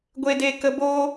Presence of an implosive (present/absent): absent